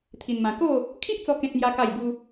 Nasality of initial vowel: oral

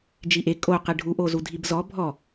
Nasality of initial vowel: oral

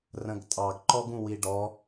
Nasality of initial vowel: nasal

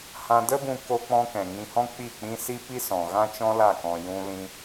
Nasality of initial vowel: nasal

